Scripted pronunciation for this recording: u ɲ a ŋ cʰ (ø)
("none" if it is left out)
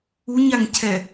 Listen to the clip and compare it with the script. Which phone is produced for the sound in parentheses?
ɛ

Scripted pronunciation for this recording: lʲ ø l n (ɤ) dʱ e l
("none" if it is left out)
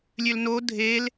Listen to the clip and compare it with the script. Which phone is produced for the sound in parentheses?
o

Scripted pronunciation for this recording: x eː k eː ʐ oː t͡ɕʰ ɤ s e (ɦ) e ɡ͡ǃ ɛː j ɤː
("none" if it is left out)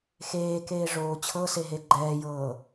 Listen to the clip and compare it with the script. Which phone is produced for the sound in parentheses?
ɦ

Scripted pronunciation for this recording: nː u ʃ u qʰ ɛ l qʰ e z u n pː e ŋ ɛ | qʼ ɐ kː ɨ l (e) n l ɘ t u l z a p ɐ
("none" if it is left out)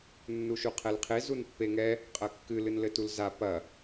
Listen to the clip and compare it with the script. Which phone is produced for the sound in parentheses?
ɨ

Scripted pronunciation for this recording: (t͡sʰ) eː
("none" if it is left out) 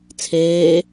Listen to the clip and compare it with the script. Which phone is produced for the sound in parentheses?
t͡sʰ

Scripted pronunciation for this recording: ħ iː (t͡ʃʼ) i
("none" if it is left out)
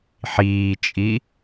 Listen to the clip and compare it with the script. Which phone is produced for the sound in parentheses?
t͡ʃʼ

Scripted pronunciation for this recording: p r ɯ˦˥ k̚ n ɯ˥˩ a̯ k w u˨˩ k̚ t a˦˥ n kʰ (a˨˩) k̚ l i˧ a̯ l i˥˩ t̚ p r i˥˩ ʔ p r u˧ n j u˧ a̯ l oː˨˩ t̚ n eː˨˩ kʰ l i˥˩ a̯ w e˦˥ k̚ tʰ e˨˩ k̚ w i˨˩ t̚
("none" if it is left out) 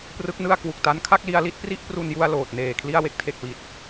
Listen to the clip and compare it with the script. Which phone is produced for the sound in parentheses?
a˥˩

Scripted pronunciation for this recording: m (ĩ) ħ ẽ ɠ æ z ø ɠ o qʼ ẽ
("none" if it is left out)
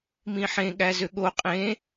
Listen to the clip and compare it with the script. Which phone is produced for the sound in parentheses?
ĩ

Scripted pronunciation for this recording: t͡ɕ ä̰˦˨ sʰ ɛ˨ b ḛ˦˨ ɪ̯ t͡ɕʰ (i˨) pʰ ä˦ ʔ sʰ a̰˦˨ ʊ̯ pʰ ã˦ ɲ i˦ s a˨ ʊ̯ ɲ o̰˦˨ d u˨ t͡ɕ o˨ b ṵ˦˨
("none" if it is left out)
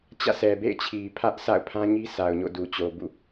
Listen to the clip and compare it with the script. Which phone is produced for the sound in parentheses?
i˨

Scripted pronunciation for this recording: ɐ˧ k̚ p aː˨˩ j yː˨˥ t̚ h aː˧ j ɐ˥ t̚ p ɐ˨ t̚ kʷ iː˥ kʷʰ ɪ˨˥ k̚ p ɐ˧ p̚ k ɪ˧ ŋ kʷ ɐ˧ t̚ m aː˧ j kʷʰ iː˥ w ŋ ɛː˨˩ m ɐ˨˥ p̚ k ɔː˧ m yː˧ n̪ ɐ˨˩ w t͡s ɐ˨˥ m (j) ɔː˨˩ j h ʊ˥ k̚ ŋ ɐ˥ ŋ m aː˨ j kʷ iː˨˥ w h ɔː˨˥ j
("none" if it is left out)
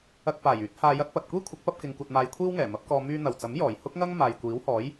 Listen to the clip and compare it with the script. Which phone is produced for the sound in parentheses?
j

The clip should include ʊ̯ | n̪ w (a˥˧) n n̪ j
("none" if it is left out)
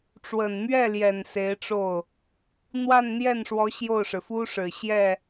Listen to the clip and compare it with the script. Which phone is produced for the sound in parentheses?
a˥˧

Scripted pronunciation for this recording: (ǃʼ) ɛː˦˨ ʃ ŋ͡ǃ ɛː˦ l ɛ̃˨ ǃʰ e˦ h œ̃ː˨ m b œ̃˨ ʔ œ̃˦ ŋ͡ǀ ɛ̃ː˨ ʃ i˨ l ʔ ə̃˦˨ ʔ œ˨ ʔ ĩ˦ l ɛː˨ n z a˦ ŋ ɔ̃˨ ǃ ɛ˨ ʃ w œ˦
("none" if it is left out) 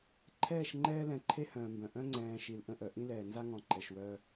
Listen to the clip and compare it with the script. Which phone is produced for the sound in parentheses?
ǃʰ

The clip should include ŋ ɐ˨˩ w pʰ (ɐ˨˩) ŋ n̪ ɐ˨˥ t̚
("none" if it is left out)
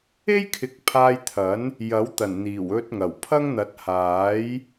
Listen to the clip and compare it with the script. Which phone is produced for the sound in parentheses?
ɐ˥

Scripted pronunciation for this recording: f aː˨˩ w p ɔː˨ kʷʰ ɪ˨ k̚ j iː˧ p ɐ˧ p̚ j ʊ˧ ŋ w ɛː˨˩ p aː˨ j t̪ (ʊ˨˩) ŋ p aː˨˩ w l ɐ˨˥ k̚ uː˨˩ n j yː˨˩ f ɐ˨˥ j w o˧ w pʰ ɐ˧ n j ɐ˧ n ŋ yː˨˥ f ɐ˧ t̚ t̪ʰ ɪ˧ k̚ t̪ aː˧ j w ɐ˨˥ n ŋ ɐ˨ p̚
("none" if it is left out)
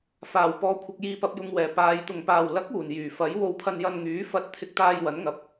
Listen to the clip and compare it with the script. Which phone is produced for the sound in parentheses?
ʊ˨˩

